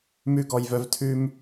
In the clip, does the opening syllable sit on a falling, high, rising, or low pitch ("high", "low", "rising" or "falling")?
high